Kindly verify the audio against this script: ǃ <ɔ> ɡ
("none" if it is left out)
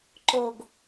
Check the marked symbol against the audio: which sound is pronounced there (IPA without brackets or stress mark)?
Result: o